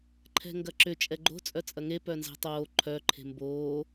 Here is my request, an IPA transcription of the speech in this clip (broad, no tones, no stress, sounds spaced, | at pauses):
ǃʰ ɛ̤ ŋ ɡ ɐ ǁ ʏ t͡ʃʼ ɛ ɡ͡ǃ o̤ t͡sʼ œ t͡sʼ ɐ ŋ e p œ n z ɛ̤ tˤ oː ǃʰ œ ǃʰ e̤ m b oː